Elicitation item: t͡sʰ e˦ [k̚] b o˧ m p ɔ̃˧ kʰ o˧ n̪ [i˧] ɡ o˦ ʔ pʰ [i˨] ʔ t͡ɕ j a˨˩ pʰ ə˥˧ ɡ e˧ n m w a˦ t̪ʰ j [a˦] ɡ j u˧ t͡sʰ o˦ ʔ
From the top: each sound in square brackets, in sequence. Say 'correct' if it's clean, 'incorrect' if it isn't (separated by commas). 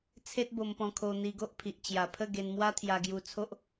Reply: incorrect, correct, correct, incorrect